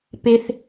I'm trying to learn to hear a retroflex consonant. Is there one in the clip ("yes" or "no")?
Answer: no